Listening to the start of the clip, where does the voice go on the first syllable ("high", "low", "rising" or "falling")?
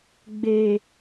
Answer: low